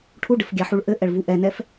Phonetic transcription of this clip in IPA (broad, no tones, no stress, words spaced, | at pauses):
ʈʰuɖɘf ɡʲaħuɭʔɘʔɛɭ vuʔɛnɛf